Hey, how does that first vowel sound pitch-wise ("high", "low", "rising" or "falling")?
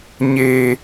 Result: low